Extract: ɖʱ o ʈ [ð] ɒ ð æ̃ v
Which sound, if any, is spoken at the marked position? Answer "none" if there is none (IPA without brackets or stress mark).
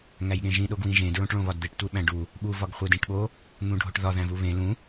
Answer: ð